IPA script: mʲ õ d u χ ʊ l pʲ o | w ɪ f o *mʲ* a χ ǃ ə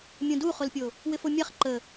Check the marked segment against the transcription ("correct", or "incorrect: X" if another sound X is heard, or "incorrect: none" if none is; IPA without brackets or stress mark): correct